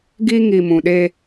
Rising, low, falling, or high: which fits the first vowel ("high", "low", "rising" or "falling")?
high